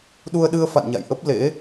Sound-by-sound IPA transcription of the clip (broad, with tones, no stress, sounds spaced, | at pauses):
ɗ u˧ ə̯ ɗ ɨ˧ ə̯ f a̰˧˨ n ɲ a̰˧˨ j ʔ ə˦˥ p̚ l ḛ˧˥